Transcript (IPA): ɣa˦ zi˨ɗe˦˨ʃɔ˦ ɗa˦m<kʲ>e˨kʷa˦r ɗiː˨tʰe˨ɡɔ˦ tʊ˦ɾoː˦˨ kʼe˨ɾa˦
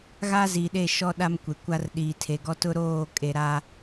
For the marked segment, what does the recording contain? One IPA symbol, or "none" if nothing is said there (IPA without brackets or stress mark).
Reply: kʷ